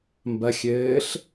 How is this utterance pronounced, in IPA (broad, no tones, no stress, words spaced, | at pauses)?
mbɐ xʲɘːɬ